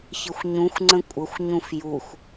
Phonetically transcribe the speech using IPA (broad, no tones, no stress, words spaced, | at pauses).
çɪxʷɲũxʷŋ͡ǀə̃ kʷʼəxʷɲũf jux